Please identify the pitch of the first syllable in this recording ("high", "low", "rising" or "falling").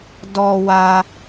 low